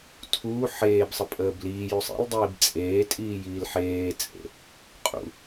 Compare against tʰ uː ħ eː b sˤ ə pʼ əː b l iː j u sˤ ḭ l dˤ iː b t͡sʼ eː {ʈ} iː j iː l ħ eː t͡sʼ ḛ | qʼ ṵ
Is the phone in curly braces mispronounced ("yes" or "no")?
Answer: yes